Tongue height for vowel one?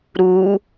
high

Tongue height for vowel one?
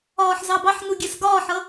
low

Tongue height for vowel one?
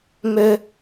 mid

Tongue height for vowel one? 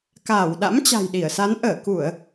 low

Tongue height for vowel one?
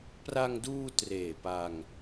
low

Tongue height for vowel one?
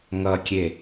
mid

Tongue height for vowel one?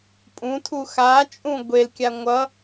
high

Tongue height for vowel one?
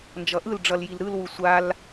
mid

